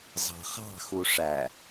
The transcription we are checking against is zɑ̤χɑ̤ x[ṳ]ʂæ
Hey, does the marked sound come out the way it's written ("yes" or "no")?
no